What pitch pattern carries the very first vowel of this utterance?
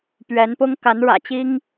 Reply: rising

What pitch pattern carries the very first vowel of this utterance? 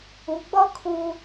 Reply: low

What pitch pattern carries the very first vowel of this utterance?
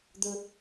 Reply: high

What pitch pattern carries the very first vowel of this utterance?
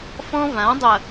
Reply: high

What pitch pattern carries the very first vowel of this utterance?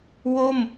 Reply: falling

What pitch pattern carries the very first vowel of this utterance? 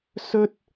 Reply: high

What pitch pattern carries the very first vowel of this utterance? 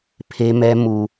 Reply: high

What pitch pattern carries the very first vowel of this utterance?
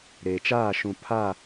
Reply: low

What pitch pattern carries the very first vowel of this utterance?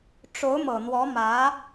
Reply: rising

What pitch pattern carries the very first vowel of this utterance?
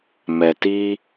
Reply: low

